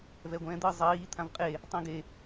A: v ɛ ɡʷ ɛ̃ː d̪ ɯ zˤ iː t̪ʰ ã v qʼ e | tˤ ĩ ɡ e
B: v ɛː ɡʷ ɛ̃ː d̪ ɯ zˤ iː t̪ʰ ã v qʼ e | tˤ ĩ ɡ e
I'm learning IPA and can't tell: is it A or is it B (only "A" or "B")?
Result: A